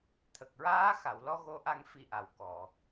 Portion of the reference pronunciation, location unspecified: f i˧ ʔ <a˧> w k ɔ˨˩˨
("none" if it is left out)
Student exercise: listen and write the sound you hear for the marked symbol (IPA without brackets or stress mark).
a˨˩